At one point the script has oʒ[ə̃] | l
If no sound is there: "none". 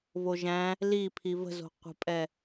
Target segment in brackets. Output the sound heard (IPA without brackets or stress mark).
æ̃